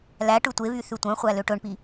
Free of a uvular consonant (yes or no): no